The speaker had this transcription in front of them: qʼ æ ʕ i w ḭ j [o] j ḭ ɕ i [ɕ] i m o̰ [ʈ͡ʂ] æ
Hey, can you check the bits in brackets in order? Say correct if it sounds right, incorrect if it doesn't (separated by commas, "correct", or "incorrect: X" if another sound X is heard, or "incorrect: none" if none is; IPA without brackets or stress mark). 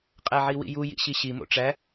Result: incorrect: u, correct, correct